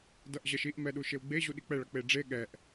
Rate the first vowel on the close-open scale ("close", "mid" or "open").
mid